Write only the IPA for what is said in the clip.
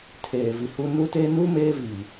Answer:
tʰeː˨vi˨hu˦ nu˦te˦ nu˦ meː˦vi˨

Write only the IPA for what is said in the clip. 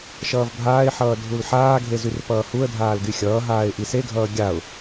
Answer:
ʃʌːvbʱaːɪ̯ħʌː dʱulħaːɡʱe zyrpʌːhuə̯dʱaːl ɡyxʲʌːɦaːɪ̯ ʔiseɡʱʌː ɡʲaʊ̯

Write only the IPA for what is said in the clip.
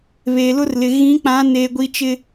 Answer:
βeː˨lʊ˦rlɪ˨ ɣĩ˨˦k͡pã˨˦ neː˨ɡʷi˨t͡ʃɪ˨

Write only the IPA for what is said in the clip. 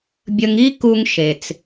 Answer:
bʲə˧ŋi˥ ku˧ŋ ʃe˩t͡s

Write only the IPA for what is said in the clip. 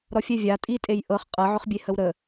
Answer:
ɾɔfʲɛvʲa tʼitʼej ʔɤχ qʼɤʕʏχbʲe həwɾə

